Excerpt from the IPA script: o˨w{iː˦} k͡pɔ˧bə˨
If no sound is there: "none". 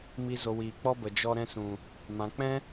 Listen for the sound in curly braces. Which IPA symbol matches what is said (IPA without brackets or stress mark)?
iː˨